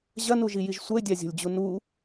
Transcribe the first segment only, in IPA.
ʑ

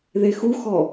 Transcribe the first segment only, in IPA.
ð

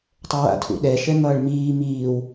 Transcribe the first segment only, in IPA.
tˤ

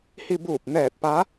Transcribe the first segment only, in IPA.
h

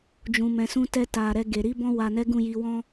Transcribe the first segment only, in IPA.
d͡ʒ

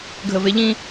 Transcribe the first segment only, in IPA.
ɡʱ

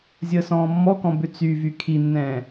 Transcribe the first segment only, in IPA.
zʲ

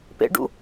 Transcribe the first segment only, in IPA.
p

